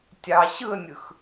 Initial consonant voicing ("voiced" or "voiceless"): voiceless